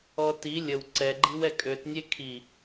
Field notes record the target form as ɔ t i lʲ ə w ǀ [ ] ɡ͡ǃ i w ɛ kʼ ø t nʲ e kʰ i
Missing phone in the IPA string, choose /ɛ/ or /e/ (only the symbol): ɛ